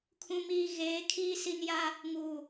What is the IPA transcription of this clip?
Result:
kʰũ˨miː˨ ɣeː˨˦kʰiː˦ si˦n ja˦ | ŋuː˨

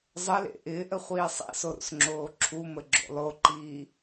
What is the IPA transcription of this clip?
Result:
zˤəlḛ ʔɪːʔə χʷiːsˤḭso ɾṵsŋ͡ǁoːǁʰumə ɡ͡ǁo̰lˠoǃiː

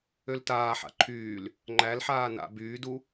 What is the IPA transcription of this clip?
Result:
øltaːħa̰ ǃʰyːl | ŋ͡ǃælħaː na̰ byːdu

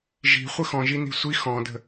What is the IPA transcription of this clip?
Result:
ʒi̤ χʷəxɔ̃ʒini̤ sʷi xɔ̃də̤

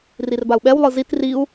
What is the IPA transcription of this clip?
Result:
rirbau̯ɓɛwlˠɯ zit riu̯

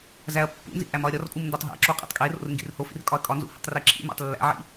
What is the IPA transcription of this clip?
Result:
zæɐ̯pːṵnzḭ ʔæmɒɐ̯ɾʲɒrkʼum ndotˤɦæ̰ǁo qʼḛtˤkʼero̰r ŋɡḭrhofḭr kʼɒɐ̯kʼɒnzṵ hḭtˤreǁʰḭmæ̰tˤ lːæ̰ʕḭ

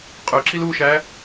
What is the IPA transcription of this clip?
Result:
qʼøǁil uʃæ

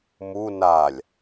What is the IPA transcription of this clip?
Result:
mu nalʲ

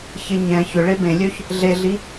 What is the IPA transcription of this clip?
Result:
çɪ ɲɛ̃ çʏɭe bẽlʲøç | ɮeɮi

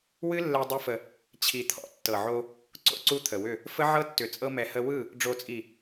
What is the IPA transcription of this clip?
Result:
wɨ˦lːɛ˧ dˤɛ˦fə˧ | t͡ɕʰi˨t̪ʰɔ̰˦ tːɤ˨ʕo˧ | ǀo̰˦ǀu˦t̪ʰə˨wʏ˦˨ | fə˦ʕɤ˦tːʏ˨ t͡sʼɤ˧mɛ˨hə˧wɯ˦˨ | ɖ͡ʐo˨t͡sʼi˨

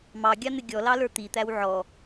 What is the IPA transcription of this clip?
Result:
mɑɡʲɑn̪ɪ ɡʲɔlɑlə˞ t̪it̪æw ʕɔ

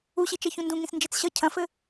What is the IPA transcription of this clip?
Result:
uɕit͡ʃɛ çũndũŋĩs nd͡ʒet͡sɕʌ cʰɐ̃fɘ

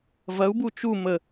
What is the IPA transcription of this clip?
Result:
vɐu̯bu t͡ʃu mə

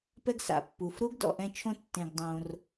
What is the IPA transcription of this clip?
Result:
pɛ˦ɡsa̰˩ pːu˩fɾu˦ɡ dɔ̰˨ʔɛ̃˦t͡ʃʰõ˥ tːẽ˨ɡdˤõ˨r

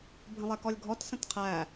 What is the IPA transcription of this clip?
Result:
bʱə̃lˠɛkɔlʲɡʱɔt sə̃tqʰæ

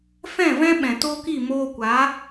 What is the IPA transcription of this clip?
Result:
fɛ̃˦˨vɛ̃˦ ɓɛ̃˨toː˦ki˦˨ moː˧kʷa˨˦

